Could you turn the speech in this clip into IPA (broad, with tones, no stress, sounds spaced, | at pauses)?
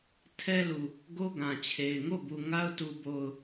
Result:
tʰ ɛ˦ l u˨ | ɡ o˦ ɡ ã˨ t͡ɕʰ e˨ ɪ̯ ŋ o˦˨ b u˨ ŋ a˦ ʊ̯ t u˦ b o˦ ʊ̯